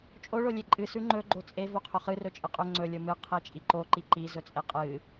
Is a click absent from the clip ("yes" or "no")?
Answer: no